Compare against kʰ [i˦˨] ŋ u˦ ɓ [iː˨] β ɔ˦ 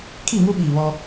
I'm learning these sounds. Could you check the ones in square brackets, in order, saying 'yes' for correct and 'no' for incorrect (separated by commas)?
yes, yes